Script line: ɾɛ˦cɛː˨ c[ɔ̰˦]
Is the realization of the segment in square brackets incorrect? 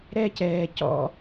no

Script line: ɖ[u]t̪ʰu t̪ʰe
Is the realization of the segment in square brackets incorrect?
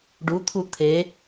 no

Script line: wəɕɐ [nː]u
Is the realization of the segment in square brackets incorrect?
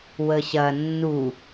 no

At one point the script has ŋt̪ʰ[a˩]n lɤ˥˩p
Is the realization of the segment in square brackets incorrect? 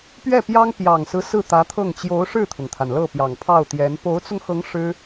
no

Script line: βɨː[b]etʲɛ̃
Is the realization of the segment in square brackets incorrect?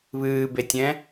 no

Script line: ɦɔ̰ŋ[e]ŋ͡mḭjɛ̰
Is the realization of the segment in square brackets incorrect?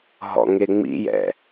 no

